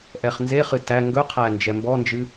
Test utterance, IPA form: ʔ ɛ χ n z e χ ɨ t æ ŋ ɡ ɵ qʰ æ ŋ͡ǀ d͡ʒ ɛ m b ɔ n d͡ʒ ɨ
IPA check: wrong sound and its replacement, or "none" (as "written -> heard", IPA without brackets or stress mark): ŋ͡ǀ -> n